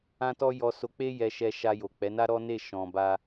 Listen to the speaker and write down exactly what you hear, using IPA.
ã˦ t ɔ˦ j ɔ˧ s o˧ k͡p e˦ j ɛ˧ ʃ ɛ˧ ʃ a˧ j o˨ k͡p ɛ˨˦ n a˦ ɾ ɔ˦ n e˦˨ ʃ ɔ̃˨ b a˧

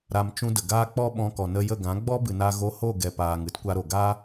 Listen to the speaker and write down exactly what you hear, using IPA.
ɾ a˧ m t͡ʃ ũ˧ d ə˨ ɡ aː˦ k͡p ɔ˦ ɓ ɔ̃˧ k ɔ˨ n ə˧ j ə˦˨ ɡ ã˨˦ ɡ͡b ɔ˦ b ɨ˨ n a˧ ɣ o˧ h o˦˨ ɡ ɛ˨ p aː˨ ŋ ɨ˧ t kʷ a˧ ɾ o˨ ɡ a˦

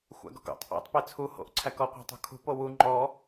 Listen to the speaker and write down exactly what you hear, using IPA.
xʷ æ̰ ɡ ɔ̤ k o̰ tˤ ʔ ḛ tˤ p e t͡sʰ u h o̰ ʔ ǀʰ æ k ɔ qʷ æ̤ tˤ o̤ kʰ ṳ p o w u ŋ͡ǃ ɔ

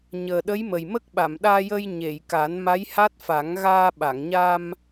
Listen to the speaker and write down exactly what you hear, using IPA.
ɲ əː˨˩ ɗ ə˧˥ j m ə˨˩ j m ə˦˥ k̚ ɓ a˨˩˨ m ɗ aː˧ j ə˧ j ɲ e˨˩˨ j k a˨˩˦ n m a˧˥ j h a˦˥ t̚ f a˨˩˦ ŋ ɣ aː˧ ɓ a˨˩˨ ŋ ɲ a˧ m

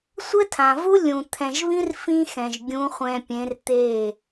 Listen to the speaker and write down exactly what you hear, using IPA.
sʷ ɘ˦ tʰ ã˨ v u˦ lʲ ũ˨ t̪ʰ ɛ̃˨ ʒ β ĩ˦ r f ĩ˦ x ɛ̃˨ ʒ ɡʲ ũ˨˦ χʷ ɛ̃˨ pʲ ẽ˨˦ r t̪ e˦˨

